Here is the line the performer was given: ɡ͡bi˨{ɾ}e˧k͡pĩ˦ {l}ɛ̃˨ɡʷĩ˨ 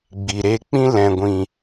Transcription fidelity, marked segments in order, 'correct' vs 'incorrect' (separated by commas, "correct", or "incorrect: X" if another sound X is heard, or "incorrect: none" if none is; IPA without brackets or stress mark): correct, correct